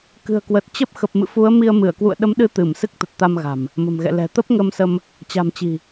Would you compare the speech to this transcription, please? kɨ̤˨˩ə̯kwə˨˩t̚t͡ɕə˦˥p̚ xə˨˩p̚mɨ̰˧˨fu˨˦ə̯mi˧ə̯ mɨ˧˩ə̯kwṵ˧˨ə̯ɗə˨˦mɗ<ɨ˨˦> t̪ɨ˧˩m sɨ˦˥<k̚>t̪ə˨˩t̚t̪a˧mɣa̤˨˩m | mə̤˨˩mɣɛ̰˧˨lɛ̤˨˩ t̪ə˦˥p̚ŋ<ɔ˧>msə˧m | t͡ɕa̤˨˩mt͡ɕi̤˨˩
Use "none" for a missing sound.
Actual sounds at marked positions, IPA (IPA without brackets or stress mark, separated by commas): ɨ˨˦, k̚, ə˧